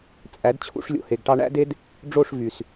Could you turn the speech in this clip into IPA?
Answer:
t͡sʼæ˨˦dt͡ɕʰṵ˧ʂlʲo̰˨ he˨ɡʈɑ˧ɳæ̰˦de˦d | ɖ͡ʐo˦˨ʂ vy˨s

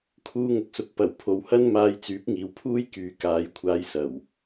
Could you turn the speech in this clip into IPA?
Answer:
kʰuː˧ŋʊ˨k̚sʊ˨k̚ pɐ˨˩w pʰo˨whɐ˥n maː˧jt͡syː˨˥p̚ŋiː˨wpʰuː˥j kyː˨kaː˨˧jkʷʰaː˧jsɐ˨˩w

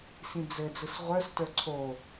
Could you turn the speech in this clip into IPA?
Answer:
sĩd͡zɘ d͡zɯsʁʷə˞stə˞ ǀʰo

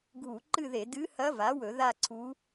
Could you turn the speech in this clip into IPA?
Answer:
ɡʱu˧˩˧ǃɨ˥˧ðe˧˩˧ dɨ˧˥hɐ˧˥va˩˥wɵ˧˩˧ ða˥˧ǀʰu˧˥

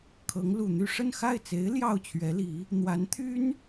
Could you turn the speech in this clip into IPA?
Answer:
kʰɤ˧˥ŋlu˨˩n̪y˥˧ ʂə˥˧nxa˥˩ɪ̯t͡se˧˥ɪ̯ ljɑ˥˩ʊ̯t͡ɕʰɥɛ˧˥li˧˥ | n̪wa˧˥nt̪ʰy˥n

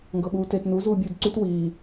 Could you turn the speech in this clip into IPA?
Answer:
ŋɡɤɓuːtet nu zuːbʲuːdǀyt wiː

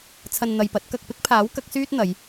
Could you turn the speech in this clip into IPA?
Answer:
t͡sʰɐ˨n n̪ɐ˨jpɐ˨˥t̚ kɐ˨k̚ pɪ˥k̚pʰaː˨˥w kɐ˨˥k̚syː˥t̚ n̪ɐ˨˧j

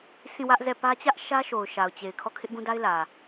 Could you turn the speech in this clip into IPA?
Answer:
sʰĩ˦˨wä˦ʔzɛ˦˨pä˦ t͡ɕä˦ʔ ʃä˦ʃo˨ʊ̯ ʃa˨ʊ̯t͡ɕe˨ɪ̯ kʰɔ˦˨kʰɪ˦ʔɡũ˦da˦ɪ̯ lä˨

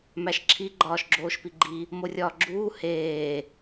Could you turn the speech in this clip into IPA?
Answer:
mæʃǁʰi ɡ͡ǃɒːʃɡ͡ǁoːʃpiɡ͡ǃi | morʲɒːɡ͡ǁuː heː

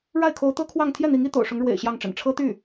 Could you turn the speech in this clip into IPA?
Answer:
ɻa˥˩ɪ̯kʰo˧˥ʊ̯t̪ɤ˥kʰwɑ˥˧ŋ t̪ʰjɛ˥˩n̪i˧˥ŋ i˧˥t̪o̰˨˩ʊ̯ʂʊ˧˥ŋɻwḛ˨˩ɪ̯ ɕjɑ˥˩ŋʈ͡ʂə̰˨˩n ʈ͡ʂʰɤ˥t̪y˥˩

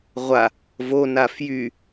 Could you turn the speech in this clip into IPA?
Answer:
ʁʷa | vona fjy

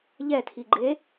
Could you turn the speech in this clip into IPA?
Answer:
ʎɛtʰiɡ͡ǃe

